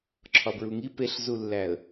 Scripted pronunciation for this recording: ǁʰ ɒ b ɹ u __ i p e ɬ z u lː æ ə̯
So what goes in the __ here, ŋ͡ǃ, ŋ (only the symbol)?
ŋ